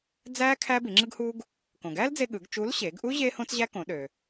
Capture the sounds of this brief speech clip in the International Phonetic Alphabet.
d͡z æː˥ kʰ æː˥ b i˩˧ ŋ͡ǁ ɯ˥ ɡ h uː˥ ɡ | k õ˩ ɡ æː˥ l d͡z e˧ ɠ ɯ˩˧ ɡ t͡ʃ u˧˥ l ɕ eː˩˧ ɡ ʔ u˥ ʑ eː˥ h õ˥ t͡s ʑ æ˥ k õ˩˧ ɗ ø˩

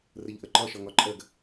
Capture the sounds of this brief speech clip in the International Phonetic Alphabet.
r ə ʎ ʔ ə ǃ ɒ ʃ ɒ ŋ ɒ ǃʼ ɜ ɡ

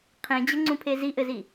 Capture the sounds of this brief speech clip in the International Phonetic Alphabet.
qʰ ẽ d͡ʑ ə ŋ͡ǀ ũ pʰ e z i ʔ ɘ z i

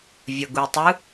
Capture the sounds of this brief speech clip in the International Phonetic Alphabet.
vʲ ʌ ɡ u tˤ ɯ

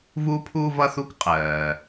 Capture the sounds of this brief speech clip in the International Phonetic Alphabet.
v u˥ pʰ u˥ v ʌ˥ θ u˥ k qʼ ɜː˩

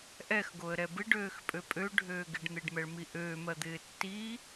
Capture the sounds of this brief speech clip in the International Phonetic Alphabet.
ʔ ɛ x ɡ o ə̯ ɾ ɛ b ɪ ɖ øː x pʼ ø pʼ ø ɖʱ øː ɡ ɪ ɖ n̪ e ɖ m ɛ ɭ m i ʔ øː m ɜ d̪ ɪː tː i

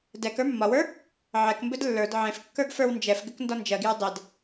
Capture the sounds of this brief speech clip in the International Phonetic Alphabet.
d ɛ k ə˞ mː ɒ w ə˞ | ʕ ɛ k m b ɘ d lː ə˞ d ʕ ẽ f kː ə˞ ɡ f ə˞ w n d͡ʒ ɛ f ɡ ɘ k n d ɒ n d͡ʒ ɜ ɡ j ə˞ dˤ ɘ d

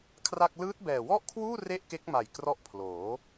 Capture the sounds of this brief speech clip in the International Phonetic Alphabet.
kʰ r a˥˩ k̚ l ɯː˦˥ t̚ b ɛː˨˩ w ɔ˥˩ ʔ kʰ w uː˥˩ r e˥˩ ʔ k e˦˥ k̚ m a˨˩ j k r ɔ˦˥ ʔ pʰ l oː˩˦

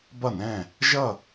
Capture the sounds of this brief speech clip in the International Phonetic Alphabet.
b ʌ˥˩ n ɛ̃˥˩ | ʒ ʌ˥˩

